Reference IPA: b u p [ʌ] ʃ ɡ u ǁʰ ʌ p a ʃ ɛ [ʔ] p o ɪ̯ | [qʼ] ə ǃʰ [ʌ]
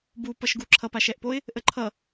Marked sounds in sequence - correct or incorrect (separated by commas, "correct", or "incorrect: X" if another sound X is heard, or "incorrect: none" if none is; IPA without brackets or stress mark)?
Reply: correct, correct, incorrect: ʔ, correct